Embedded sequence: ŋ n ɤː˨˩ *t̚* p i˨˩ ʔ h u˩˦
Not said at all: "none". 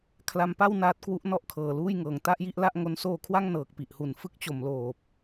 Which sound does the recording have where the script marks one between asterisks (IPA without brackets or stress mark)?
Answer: k̚